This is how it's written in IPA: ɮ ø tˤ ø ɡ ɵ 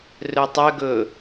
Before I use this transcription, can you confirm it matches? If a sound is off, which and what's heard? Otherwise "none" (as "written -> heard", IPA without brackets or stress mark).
ɮ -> r